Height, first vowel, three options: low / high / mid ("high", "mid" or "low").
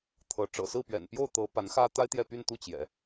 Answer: mid